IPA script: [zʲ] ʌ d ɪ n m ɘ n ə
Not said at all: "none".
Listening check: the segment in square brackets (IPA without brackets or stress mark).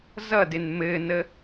z